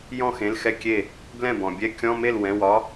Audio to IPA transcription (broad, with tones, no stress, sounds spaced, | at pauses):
j ɔ̃˥˩ x ẽ˩˧˩ l x ɛ˥˩ kʲ e˥˩ | b l ɛ̃˥˩ b ɔ̃˩ bʲ ɛ˧˥˧ kʲ ɔ̃˧˥˧ m e˥˩ l w ɛ̃˩˧˩ w ɒ˧˥